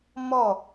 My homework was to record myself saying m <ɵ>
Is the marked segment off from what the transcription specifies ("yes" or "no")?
yes